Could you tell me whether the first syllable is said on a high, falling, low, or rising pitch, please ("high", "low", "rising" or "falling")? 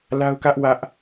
high